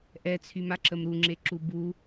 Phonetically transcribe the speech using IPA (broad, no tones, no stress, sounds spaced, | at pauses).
ʔ ɛ t͡sʰ y m a ǁ ə m ɾ u ŋ͡ǁ e ǁ u b u